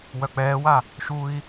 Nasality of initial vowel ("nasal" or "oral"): oral